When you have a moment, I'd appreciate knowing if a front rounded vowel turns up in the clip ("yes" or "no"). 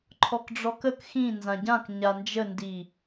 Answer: no